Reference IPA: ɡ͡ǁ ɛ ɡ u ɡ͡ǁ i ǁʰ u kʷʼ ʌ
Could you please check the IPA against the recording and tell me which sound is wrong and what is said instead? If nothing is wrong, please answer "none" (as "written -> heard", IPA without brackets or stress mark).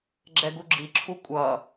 none